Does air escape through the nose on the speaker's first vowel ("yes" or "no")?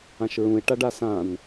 yes